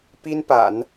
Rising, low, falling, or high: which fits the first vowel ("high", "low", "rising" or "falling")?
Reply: high